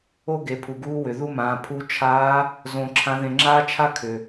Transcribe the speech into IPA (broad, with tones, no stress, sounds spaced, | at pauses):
o˥ ɡ e˩˧ pʰ u˩ ɡ uː˧˥ w ʏ˩ ð u˥ m ãː˩˧ pʰ u˧˥ t͡ʃʰ aː˧˥ | z õː˧ ǁʰ ã˧˥ ð ẽ˧ ŋ͡ǁ aː˥ t͡ʃʰ a˥ kʰ ʏ˩